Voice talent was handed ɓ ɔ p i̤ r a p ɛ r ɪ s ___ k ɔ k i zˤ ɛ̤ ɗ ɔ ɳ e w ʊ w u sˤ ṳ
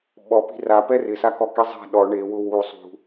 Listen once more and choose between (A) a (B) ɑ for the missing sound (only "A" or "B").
A